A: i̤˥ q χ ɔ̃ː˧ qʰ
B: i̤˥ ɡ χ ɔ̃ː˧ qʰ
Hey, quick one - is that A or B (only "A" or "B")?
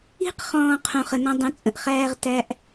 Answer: A